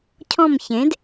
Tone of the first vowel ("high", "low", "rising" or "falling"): falling